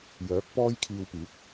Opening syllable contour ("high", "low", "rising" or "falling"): rising